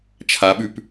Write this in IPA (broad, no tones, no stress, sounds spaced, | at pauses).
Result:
t͡ʃʰ a ɓ ʉ p